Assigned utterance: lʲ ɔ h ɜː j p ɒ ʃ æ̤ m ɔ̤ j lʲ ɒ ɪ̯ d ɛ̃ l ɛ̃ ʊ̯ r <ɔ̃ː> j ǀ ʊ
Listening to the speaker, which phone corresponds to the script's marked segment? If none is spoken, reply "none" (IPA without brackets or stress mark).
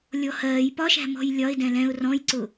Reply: ɔ̃